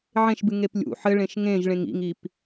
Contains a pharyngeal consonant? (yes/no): yes